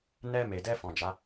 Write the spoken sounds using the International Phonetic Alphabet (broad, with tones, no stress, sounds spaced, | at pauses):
n ɛ˧ m e˨ d ɛ˧ f ɔ̃˨ d͡ʒ a˨˦